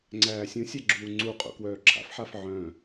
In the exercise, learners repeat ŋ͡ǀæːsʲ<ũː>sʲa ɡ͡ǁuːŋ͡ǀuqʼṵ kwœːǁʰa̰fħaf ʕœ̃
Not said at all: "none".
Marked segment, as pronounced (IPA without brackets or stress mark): ũ